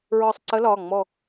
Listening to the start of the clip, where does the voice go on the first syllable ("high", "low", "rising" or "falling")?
falling